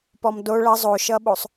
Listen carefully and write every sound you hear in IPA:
p ɔ m d o ɭ ʌ zˤ o ʃ ʌ ɓ o sˤ

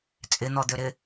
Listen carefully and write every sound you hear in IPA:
t͡sʼ ɪ n̪ ɔ d̪ ø ɾ ɪ

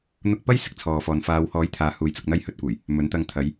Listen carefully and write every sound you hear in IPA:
n̪ ʊ˧ k̚ p ɐ˥ j s ɪ˥ k̚ t͡sʰ ɔː˨ f ɔː˨ n f aː˨˧ w h ɔː˨˥ j t̪ʰ aː˨ h uː˨ j t͡s ʊ˨ k̚ n̪ ɐ˧ j h ɵ˧ t̚ kʷ ɐ˨˩ j | m ɵ˨˥ n t̪ ɐ˧ ŋ t̪ʰ ɐ˨˧ j

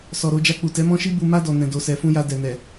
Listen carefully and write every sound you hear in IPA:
s ɔ˨ ɾ o˧ d͡ʒ a˧ k͡p u˨ t ɛ˨˦ m ɔ̃˦ ʃ i˦ b u˧ m a˧ d ɔ˨ n ɛ̃˨ d o˨ s ɛ˨ f ũ˧ j a˧ d ɛ˨ n ɛ˨

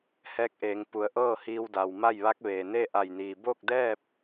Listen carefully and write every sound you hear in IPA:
h ɛː˧˥ k̚ ʔ eː˩˧ ŋ p u˩˧ ə̯ ʔ ɤː˥˨ h iː˧ w d a˩ w m a˥˨ j ʋ a˧˥ k̚ ʋ eː˩ n eː˥˨ ʔ a˧˩ j n iː˩ b o˥˨ k̚ d ɛː˥˨ p̚

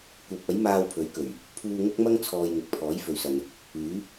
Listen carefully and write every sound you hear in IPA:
kʷ ɐ˨˥ p̚ ɐ˨˥ j m aː˧ w pʰ ɵ˨˥ ɥ k ɵ˨˩ ɥ | pʰ uː˧ ŋ ʊ˥ k̚ m ɐ˥ ŋ t͡sʰ ɔː˨ j ŋ ɪ˨ k̚ pʰ ɔː˨˥ j f ɵ˨ ɥ s ɐ˨ n | yː˨˥

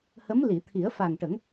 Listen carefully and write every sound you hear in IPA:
h ə˧˥ m l i˨˩˨ t̪ʰ i˨˩˦ ə̯ f a˨˩ ŋ ʈ ə˨˩˦ ŋ

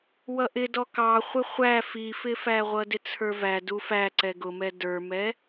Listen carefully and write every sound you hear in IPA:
w ʌ ʔ ɪ d ɔ k ɑ χʷ ɪ χʷ æ f i f ɪ f æ ʁʷ ʌ d ɪ t͡sʰ ə˞ v æ d u f æ ǀ ɛ ɡ ʊ m ɛ d ə˞ m ɛ

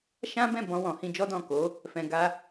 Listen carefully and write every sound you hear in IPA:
ʃ ã˦ b ɛ̃˦˨ b ɔ̃˧ w ɔ̃˨ h ĩ˧ d͡ʒ ɔ˦ d ɔ̃˦˨ k o˨˦ | f ɛ̃˨ ɡ a˧

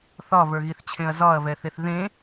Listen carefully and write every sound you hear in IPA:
θ ɒ v ə˞ ɣ i θ t͡ɕʰ ẽ ɐ̯ z ɒ ɐ̯ v ɛ θ e θ ð ẽ

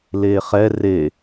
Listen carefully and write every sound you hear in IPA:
l e χ ɛ r e

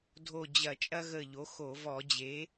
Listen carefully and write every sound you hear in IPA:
dʱ o˧˩ d͡ʑ ɐ˧˩˧ t͡ʃʼ ɐ˦ ɣ ə˧˩ ʎ o˩˥ x o˧˩˧ v ɔ˧˩˧ d͡ʑ e˩˥

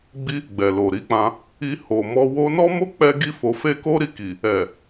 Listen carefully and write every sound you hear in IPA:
ɡ͡b i˦ | ɡ͡b ɛ˨ l o˨ ɾ i˧ k͡p ã˧ | i˧ h o˨ m ɔ˧ w o˧ n ɔ˦ m o˦ k͡p ɛ˦ ɡ i˦ f o˧ f e˦ k o˦ ɾ i˧ k i˨ | ɛ˨

